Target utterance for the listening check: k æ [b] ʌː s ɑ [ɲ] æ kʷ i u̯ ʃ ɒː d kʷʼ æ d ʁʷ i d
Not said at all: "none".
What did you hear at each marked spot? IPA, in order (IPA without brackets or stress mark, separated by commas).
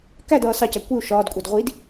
d, c